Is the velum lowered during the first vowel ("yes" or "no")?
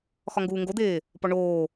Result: no